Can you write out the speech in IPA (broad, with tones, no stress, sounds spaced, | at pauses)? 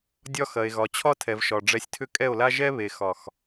dʲ ɒ˦ x ɐ˨ e̯ ɣ ɒ˨ t͡ɕʰ ɒ˦ tʰ ɛ˨ v ʃ ɒ˨ ɖ͡ʐ ɛ˧ sʲ tʰ ʏ˦ kʼ ɛ˦˨ o̯ l a˦ ʒ ɛ˦ β e˨ x ɒ˨ x